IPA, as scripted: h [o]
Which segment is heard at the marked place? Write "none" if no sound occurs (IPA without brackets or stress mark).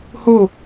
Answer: o